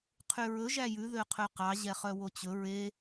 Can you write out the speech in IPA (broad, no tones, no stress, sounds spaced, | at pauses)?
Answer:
qʰ y ɹ ɵ ʒ æ j ʉ ð ø qʰ ø q ɑ ʑ ɛ χ œ w o t͡ɕ ɵ ɹ e